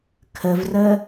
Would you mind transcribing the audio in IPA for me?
kʰ ə v r ə

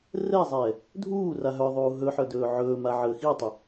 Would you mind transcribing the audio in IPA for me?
r ɛ zˤ ɛː | dʱ uː r a ɦ œ ðˤ uː ɦ ɵ ħ œ d ɵː ʕ ɵː m a ʕ əː x i tˤ ɪ

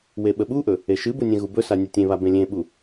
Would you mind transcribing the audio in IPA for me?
w e ɓ ə ɓ u ʔ ɵ | e ʃ ɨ b u nʲ ɛ̃ ɣ u b ɵ s a nʲ ɛ tʲ ẽ β a b ẽ lʲ ẽ ɓ u

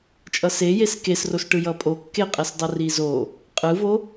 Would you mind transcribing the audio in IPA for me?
t͡ʃʼ ʌ s e j e s k e s r o s ʈ ɯ j ʌ pʼ o kː e qʼ ɛ s dˤ ʌ r i z o | qʼ ɯ v o

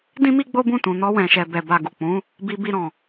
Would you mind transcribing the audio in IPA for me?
d ĩ˦ m i˦ ɡ͡b o˦ b ũ˦˨ t ũ˨ n ɔ˧ w ɛ̃˨ ʃ ɛ˨ b ɛ˨ b a˨ ɡ u˨ k͡p ũ˨˦ | b i˧ b i˧ ɾ ɔ̃˨

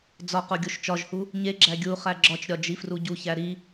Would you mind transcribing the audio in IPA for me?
d͡z ɒ q o ɡʲ o ʃ t͡ʃ ɒ ʒ h u | ɲ e ɡ͡ǁ æ ɡʲ u χ æ ɡ͡ǁ ɒ t͡ʃ ɾʲ ɒ d͡ʒ i f r u ɟ u ç æ ɾ i

